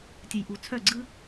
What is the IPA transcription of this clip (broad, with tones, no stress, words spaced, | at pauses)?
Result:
tʲə˨jʔu˨t͡sʰœ˦˨ ɡ͡ǀɯ˧